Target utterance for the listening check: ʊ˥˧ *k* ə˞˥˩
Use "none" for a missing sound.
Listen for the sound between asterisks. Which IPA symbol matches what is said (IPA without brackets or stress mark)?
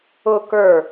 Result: k